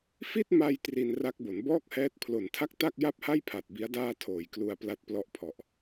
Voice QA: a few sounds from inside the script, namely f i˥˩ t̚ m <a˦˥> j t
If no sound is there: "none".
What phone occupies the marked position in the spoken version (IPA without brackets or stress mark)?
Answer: a˧